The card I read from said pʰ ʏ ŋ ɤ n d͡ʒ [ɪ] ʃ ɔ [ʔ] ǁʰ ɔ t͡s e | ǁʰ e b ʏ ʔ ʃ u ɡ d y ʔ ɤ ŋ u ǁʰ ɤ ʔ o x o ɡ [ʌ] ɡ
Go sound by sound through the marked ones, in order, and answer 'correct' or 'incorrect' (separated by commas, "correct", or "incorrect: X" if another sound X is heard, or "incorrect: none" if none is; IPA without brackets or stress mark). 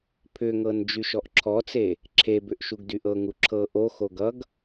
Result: incorrect: y, correct, correct